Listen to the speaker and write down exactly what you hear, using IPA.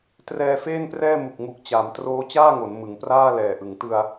t r ɛː˧ f eː˥˩ n p r ɛː˥˩ m u˨˩ k̚ ŋ u˨˩ k̚ t͡ɕ a˩˦ m t r oː˦˥ t͡ɕ aː˥˩ ŋ o˩˦ n m ɯ˩˦ ŋ p r aː˥˩ l ɛː˨˩ ʔ ɯ˩˦ ŋ t ɯ˧ a̯

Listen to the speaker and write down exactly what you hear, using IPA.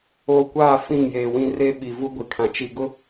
oː˨ kʷ aː˦˨ f ĩ˦˨ ŋ j eː˨ w ĩ˦ r e˦ ɓ i˨ v u˦ ɡʷ i˨ kʰ ã˨ t͡ʃ i˨ ɡ ʊ˦

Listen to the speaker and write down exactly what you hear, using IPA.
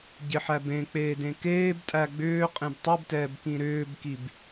ɟ ɪ ħ æ b ẽ k͡p eː d ẽ k eː b tʼ æ ɡ͡b ʏː qʼ ẽ b tˤ ɯ b t ɛː b k ĩ ɾ ʏː b k i b

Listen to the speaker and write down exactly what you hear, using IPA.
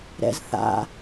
ɾ ɛ̰ z θ a̰

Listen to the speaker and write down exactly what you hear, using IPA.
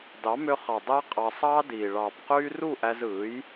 d ɑ˨˦ m ø˧ χ ɑ˨ dˤ æ˦ qʼ ɑ˧ sˤ ɑː˦ d iː˨ ɭ ɑː˨ p q yː˧ r u˦˨ ʔ æ˧ z ɯː˨˦ j

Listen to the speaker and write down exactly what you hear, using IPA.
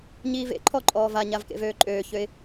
ɲ iː v ḛ ǃʰ ɔ ǃʼ ɔː v a ɲ a v k ḛ v øː ǃʼ øː ç ø ɪ̯

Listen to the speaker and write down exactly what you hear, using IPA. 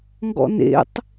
ŋ ɡ ɔ̰ n ḛ tˤ

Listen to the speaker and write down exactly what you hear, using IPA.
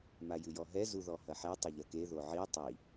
m a j ɨ j ɔ ɦ ɛ z u ð ɔ h ɐ ħ ɛ tˤ ɐ ʎ ɐ k e ð o ʕ i tˤ i

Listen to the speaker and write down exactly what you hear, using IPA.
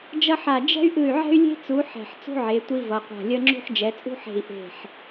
d͡ʒ ʌ˥ ħ a˦˨ d͡ʒ ɛ̤˥ y̯ ʔ ɯ˦˨ y̯ ʕ ɛ̤˥ y̯ lʲ e̤˥ t͡s u˨˦ ħ ɛ̤˦˨ ħ t͡s ṳ˥ ʕ e˨˦ tʷ i˥ v ʌ˨˦ qʷ a̤˦˨ lʲ ʌ˥ ŋ͡ǁ ṳ˥ ħ d͡ʒ ɛ˨˦ t͡sʼ ṳ˥ ħ e̤˦˨ i̯ ʔ e̤˦˨ ħ

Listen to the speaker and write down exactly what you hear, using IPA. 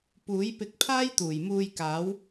p uː˨˥ j p ɪ˧ k̚ pʰ aː˥ j t̪ uː˨˩ j m uː˧ j k aː˨˥ w

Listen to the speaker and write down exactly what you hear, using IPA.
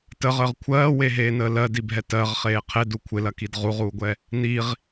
t ə ʁ əː ʁ kʷʰ ɜː w e ɦ eː n əː l ɜ d i bʱ ɛ t ɜ ʁ χ eː qʰ e d u kʷʰ ɪ l ɐ k i d ʁ u ʁ uː ɡʷ ɛ | n i ʁ

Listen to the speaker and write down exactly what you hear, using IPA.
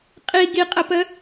qʼ i ɡ i qʼ ə p ə

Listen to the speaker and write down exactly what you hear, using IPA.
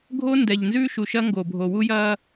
ɡʱ o˦ n d ɛ˨ ʎ n z ʉː˦ ʃ u˨ ʃ ɐ˦ ŋ ɡ o˨ bʱ o˨ w u˦ j ɐː˦

